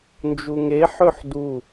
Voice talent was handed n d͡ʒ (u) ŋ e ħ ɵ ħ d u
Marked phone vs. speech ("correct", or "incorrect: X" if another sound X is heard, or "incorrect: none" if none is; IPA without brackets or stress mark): correct